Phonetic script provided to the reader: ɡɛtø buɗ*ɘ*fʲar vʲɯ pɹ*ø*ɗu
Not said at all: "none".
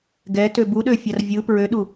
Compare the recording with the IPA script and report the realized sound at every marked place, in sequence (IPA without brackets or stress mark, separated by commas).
ø, ø